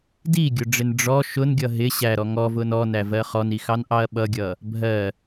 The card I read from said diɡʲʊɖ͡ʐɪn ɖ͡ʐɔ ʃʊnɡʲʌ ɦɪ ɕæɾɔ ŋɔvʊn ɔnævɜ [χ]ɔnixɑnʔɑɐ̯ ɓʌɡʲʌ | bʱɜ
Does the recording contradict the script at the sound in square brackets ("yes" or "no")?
no